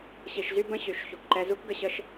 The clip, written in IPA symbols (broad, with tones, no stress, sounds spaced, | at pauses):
ɕ i˨ ʃ z y˦ b ə̃˦˨ ɕ y˨ ʃ ç u˨ k ǃ ɛ˧ z u˦ k ɡ ə˧ ɕ ə˦ ʃ